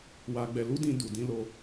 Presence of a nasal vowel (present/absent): present